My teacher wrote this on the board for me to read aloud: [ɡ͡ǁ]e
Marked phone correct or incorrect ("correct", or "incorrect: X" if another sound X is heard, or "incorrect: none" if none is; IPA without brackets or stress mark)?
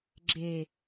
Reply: correct